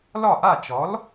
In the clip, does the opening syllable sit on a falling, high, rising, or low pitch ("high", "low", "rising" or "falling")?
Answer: falling